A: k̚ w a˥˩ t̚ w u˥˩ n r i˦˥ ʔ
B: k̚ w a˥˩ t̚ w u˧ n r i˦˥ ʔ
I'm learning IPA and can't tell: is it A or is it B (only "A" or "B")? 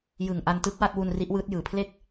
B